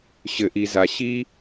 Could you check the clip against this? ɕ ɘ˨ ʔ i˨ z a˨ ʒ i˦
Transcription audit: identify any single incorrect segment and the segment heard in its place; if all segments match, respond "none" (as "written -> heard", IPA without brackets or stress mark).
ʒ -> ɕ